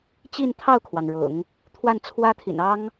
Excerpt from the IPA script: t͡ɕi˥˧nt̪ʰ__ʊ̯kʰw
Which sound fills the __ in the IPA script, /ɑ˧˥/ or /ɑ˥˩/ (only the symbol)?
ɑ˥˩